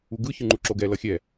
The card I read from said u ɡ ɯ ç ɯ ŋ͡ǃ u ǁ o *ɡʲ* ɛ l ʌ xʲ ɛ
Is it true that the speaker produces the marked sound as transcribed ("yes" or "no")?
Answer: no